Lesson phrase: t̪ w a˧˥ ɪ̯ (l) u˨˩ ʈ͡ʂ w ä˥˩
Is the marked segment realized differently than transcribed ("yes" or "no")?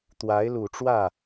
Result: no